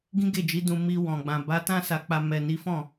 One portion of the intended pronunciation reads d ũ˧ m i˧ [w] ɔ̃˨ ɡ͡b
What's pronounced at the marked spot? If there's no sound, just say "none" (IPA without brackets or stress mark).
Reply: w